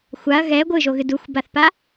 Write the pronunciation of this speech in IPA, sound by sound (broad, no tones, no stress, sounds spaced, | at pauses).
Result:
xʷ a ɐ̯ ɣ ɛ ɡʷ ɨ ʒ o ɣ ɨ d u xʷ b a θ p a